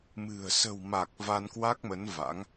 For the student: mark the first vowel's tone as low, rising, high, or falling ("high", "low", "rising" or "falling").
low